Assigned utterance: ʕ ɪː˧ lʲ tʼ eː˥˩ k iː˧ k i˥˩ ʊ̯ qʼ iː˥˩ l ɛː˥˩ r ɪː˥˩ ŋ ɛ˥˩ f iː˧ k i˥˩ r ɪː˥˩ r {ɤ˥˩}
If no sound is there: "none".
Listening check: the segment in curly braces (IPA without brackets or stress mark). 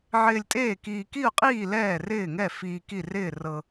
ɤ˧